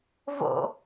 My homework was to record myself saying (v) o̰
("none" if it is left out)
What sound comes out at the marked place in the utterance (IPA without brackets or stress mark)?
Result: v